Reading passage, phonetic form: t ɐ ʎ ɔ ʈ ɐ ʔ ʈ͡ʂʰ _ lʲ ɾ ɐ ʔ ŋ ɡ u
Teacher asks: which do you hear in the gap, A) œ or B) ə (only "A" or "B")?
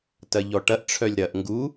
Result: A